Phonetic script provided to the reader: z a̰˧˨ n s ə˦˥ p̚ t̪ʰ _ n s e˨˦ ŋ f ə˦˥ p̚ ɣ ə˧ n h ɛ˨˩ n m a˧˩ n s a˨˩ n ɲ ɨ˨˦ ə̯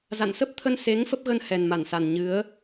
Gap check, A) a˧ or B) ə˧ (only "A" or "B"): B